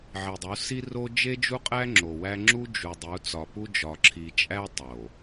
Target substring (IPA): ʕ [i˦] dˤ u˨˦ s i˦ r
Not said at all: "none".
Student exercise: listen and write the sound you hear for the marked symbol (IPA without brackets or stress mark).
i˨